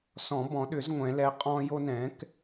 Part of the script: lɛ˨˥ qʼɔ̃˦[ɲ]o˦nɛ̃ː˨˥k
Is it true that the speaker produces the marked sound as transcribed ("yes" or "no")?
no